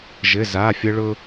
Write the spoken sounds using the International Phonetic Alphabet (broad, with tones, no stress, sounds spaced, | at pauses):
ʒ ɘ˩˧˩ z a˩˧˩ fʲ ə˧ ɭ ʊ˧